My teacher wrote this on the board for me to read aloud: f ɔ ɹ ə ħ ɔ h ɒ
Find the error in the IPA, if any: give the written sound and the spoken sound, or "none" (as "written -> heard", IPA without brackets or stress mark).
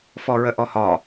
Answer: ħ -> ʔ